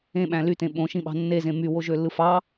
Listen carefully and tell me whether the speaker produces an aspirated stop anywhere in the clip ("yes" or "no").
no